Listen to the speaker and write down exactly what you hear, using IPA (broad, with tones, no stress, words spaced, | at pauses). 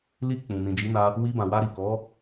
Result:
li˧ k͡pũ˨ nĩ˨ d͡ʒi˨˦na˧ | wi˧bã˨wa˧ ɾi˨ kɔ˨˦